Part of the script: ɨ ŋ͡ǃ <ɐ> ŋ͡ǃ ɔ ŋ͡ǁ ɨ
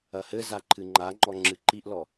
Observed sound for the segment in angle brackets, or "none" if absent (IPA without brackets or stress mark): a